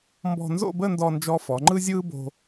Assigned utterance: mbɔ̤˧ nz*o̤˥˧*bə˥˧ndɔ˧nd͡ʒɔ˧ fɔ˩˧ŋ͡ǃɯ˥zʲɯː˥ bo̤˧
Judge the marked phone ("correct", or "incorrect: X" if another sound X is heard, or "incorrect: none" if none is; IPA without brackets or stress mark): incorrect: o̰˥˧